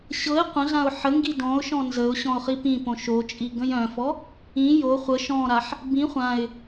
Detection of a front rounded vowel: present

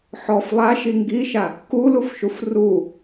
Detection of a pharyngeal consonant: present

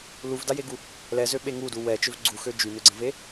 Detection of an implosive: present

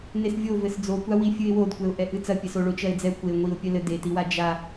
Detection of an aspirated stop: absent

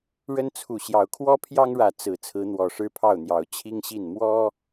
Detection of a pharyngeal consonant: absent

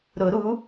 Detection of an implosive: absent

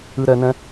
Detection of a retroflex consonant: absent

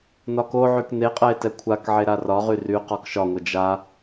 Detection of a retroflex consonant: absent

